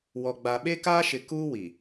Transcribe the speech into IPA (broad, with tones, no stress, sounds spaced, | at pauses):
w ɔ˨ ɡ͡b a˨ ɓ e˦ k aː˦ ʃ ɪ˨ k uː˦ w i˨